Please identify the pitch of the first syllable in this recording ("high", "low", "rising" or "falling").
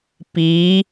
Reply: rising